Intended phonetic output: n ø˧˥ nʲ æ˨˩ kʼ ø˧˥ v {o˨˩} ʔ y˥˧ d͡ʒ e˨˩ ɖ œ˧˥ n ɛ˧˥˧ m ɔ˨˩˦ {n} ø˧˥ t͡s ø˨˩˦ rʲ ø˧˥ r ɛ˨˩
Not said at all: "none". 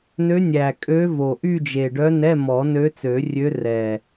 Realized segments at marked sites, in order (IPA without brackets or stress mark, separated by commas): o˨˩, n